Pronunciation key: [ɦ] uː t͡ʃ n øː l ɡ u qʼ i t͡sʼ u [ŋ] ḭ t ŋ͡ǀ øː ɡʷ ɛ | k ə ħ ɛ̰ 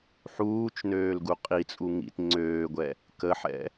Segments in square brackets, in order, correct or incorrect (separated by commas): incorrect, correct